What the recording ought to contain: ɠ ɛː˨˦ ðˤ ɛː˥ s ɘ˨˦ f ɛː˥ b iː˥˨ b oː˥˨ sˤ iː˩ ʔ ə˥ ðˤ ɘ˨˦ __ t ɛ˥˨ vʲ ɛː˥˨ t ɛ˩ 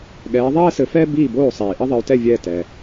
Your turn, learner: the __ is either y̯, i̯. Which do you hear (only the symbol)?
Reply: y̯